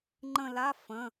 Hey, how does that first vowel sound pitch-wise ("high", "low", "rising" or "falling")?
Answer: falling